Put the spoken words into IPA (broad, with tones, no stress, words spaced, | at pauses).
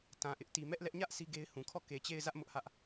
tã˨ʔɪ˦ʔ ti˨mɛ˦ʔlɛ˦ʔ ɲä˦ʔ sʰi˦ɡe˦ɪ̯hũ˨ kʰɔ˦˨ke˨t͡ɕe˦˨ɪ̯zä˦ʔ mʊ˦ʔhä˦ʔ